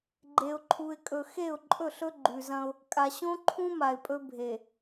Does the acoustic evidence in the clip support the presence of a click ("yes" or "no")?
yes